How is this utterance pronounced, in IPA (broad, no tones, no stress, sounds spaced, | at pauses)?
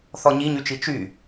θ ɔ ɲ i ɲ y t͡ʃ i t͡ʃ y